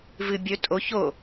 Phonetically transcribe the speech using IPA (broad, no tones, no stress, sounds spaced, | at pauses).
v ɨ bʲ ɵ tʼ o ç o